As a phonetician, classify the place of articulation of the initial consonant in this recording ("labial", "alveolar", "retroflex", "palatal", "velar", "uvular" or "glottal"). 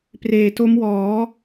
labial